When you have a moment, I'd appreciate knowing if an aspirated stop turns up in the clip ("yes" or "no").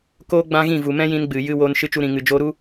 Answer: no